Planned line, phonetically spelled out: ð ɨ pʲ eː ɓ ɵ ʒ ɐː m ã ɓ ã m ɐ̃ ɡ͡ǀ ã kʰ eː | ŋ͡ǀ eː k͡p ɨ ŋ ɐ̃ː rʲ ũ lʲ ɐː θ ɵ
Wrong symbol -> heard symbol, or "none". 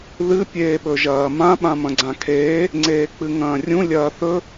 none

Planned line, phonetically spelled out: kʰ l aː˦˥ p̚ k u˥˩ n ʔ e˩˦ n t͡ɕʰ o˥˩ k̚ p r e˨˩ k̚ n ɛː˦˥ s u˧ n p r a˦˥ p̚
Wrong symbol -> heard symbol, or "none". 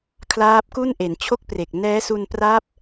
none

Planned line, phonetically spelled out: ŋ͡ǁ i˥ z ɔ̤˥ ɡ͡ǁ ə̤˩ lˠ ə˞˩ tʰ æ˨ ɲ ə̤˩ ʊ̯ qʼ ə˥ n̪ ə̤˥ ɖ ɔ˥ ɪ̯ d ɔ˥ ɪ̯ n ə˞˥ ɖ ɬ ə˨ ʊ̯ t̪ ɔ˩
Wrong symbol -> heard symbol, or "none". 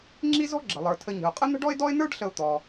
æ˨ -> ə˨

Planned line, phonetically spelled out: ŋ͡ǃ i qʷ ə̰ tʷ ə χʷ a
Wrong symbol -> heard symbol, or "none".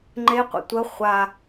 i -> e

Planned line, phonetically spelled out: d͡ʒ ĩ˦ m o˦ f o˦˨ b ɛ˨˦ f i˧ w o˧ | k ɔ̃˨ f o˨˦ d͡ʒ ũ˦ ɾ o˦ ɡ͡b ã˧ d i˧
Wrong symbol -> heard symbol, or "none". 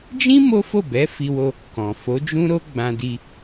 none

